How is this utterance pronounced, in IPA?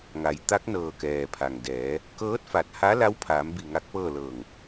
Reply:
ŋ a˩˧ j t̪ a˧˥ k̚ n ɤː˧˩ k ɛː˩ pʰ a˩ ŋ d ɛː˩˧ | k ɤː˧˥ t̚ f a˧˩ t̚ h a˧˥ l a˧˥ w pʰ aː˩˧ m b i˧˩ ŋ a˧˥ k̚ p ɤː˥˨ l ɤː˧˩ ŋ

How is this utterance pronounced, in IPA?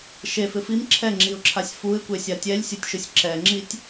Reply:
ʃ e f ɪ f i m ǁʰ ɛ ŋ͡ǁ i ʊ̯ ǁʰ a sʲ f u ɪ̯ kʷ e sʲ a tʲ ɛ lʲ sʲ u tʲ ʃ ʊ sʲ ǁ ɛ ŋ͡ǁ i tʲ

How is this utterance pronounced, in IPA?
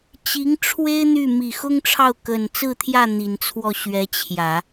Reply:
t͡ɕ i˧˥ ŋ ʈ͡ʂʰ w e˥ ɪ̯ n̪ y˥˩ m i˨˩ x ʊ˥ ŋ ʈ͡ʂʰ ɑ˥˩ ʊ̯ k ə˨˩ n t͡s ɹ̩˥˧ t̪ʰ j ä˥˩ n̪ i˨˩ n t͡sʰ w ɔ˥˩ ɕ ɥ ɛ˧˥ t͡ɕʰ j ä˨˩˦

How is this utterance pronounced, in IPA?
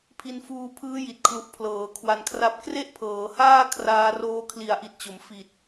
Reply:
pʰ i˧ n f uː˧ pʰ ɯː˦˥ j i˨˩ t̚ kʰ l u˨˩ ʔ pʰ l ɤː˩˦ kʰ w a˧ n kʰ r a˥˩ p̚ k r e˥˩ ʔ pʰ ɤː˩˦ h aː˥˩ kʰ r aː˧ r oː˧ kʰ l i˩˦ a̯ ʔ i˨˩ t̚ t͡ɕ o˩˦ m f i˨˩ t̚

